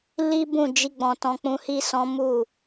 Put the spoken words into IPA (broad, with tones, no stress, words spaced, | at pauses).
li˦bũ˦˨d͡ʒi˧ ɡ͡bɔ̃˧tɔ̃˦k͡pũ˦ hi˦sɔ̃˦ mu˦˨